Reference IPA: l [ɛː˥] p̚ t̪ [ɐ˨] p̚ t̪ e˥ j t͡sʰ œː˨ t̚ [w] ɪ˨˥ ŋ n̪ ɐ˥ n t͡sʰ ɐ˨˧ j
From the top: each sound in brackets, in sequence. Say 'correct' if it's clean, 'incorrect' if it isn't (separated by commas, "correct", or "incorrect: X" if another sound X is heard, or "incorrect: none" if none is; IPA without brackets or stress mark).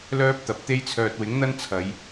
incorrect: œː˥, correct, correct